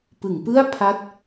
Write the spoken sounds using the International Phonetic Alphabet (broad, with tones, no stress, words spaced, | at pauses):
pɯ˩˦ŋpɯ˥˩a̯ pʰa˦˥t̚